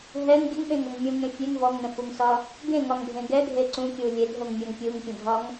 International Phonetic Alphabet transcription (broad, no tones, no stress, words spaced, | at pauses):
ɦɛŋ ɡʲəŋɓẽŋoŋ mʲũŋẽ fʲeŋ vɔŋnə̃fuŋsɒ | ɡẽŋɒŋbʱẽ ɡɛɡʱe ǀũkʲu lʲedʱoŋmʲɒŋ pʲuŋpʲə̃dʱɒŋ